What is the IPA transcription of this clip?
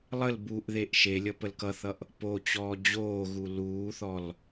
lˠəl buʔðeʔ ʃelʲʌ pəlkʌθʌʔ | pot͡ɕɔː d͡ʑoːɣu luːθɔl

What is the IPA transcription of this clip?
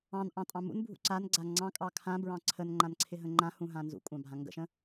ɑ̃nʔɑ̃tʼɑ̃ mṵnbʱṵ ǀanɡ͡ǀa ŋ͡ǀɑ̃kʼɑ kʰãbɹɑ̃ ǀʰənŋ͡ǃãnǀʰɪɦə̃ ŋ͡ǃãhũɦã nzṵkʷʼɑ̃bʱã ŋɡə̰ʃə̃

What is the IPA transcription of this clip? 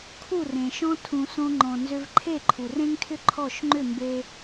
kʰu˦˨rẽ˨ʃɔ̃˦ tʰũ˨sõ˧ŋ͡ǃɔ̃˨ nzʏ˧vǃʰe˦˨ǃʰu˨r ẽ˦ŋtʰʏ˦ ǃʰɔ˦˨ʃ ŋ͡ǃʏ˦˨mbe˧

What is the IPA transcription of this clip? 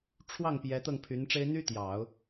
ʈ͡ʂʰwɑ˥˩ŋ pjɛ˧˥t̪ɤ˥˩ŋpʰy˧˥nʈ͡ʂe˥ɪ̯ n̪y˥t̪jɑ˨˩˦ʊ̯

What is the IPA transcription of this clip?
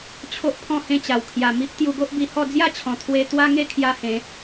t͡ɕʰo˦ʔpʰɔ̃˥˧hẽ˥˧t͡ɕa˨˩w kʰja˨˩mi˦p̚ t̪ju˧ɡo˦ʔbi˧hɔ˥˧ d͡zja˥˧t͡ɕʰɔ̃˨˩ t̪ʰwe˦ t̪wa˦ŋe˥˧ kʰja˦hẽ˨˦

